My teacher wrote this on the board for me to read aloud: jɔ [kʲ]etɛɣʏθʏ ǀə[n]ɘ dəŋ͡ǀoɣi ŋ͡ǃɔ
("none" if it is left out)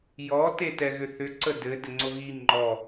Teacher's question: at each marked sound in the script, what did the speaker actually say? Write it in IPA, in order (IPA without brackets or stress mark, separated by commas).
t, d